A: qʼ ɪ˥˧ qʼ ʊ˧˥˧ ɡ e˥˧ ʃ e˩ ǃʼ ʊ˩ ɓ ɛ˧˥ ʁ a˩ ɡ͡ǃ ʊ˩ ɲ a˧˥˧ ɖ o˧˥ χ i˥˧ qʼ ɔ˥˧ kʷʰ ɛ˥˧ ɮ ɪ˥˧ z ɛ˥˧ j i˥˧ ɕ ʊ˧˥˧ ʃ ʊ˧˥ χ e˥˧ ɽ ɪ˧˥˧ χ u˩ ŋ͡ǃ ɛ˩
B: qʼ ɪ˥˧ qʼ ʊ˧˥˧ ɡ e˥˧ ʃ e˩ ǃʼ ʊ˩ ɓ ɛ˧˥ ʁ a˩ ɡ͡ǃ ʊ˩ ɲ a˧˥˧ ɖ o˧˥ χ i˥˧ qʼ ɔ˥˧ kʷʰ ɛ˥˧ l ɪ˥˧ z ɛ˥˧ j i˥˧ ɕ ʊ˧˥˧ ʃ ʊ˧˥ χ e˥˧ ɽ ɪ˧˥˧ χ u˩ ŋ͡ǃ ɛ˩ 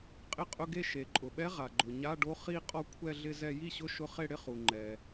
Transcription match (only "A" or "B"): A